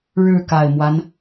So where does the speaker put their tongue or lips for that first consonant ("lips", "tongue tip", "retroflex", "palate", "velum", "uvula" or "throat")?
retroflex